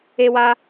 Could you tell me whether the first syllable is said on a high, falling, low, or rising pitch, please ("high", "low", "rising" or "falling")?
high